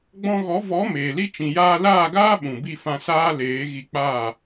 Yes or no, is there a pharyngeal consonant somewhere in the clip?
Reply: no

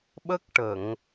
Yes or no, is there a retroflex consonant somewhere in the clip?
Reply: yes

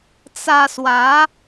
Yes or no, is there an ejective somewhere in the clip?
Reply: no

